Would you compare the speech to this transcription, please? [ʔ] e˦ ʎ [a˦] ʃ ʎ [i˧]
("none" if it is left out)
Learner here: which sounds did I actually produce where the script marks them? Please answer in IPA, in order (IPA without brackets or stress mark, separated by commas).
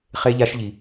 χ, a˦, i˧